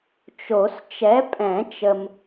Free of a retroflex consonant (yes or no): yes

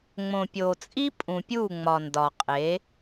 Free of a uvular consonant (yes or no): no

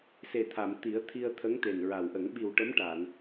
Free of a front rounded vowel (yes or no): yes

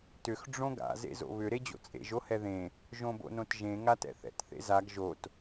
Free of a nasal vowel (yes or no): no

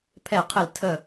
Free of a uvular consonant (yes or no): no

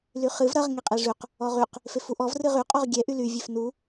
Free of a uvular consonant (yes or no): no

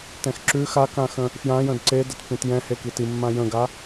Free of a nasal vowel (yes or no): no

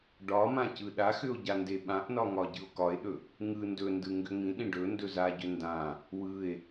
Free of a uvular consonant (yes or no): yes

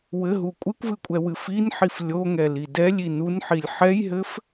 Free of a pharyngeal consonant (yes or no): no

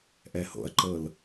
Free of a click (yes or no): no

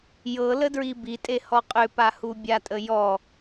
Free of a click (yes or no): yes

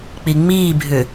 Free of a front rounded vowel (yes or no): no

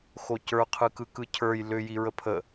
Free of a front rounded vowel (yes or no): no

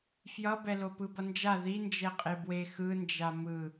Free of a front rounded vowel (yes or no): yes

